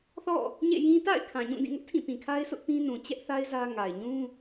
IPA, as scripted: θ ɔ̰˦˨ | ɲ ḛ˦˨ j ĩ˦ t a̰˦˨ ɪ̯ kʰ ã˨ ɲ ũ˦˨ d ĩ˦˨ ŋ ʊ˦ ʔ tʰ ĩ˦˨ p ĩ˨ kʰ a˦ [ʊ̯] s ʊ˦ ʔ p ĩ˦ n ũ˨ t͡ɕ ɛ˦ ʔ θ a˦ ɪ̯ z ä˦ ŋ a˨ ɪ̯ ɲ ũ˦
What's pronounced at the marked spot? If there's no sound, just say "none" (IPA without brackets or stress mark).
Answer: ɪ̯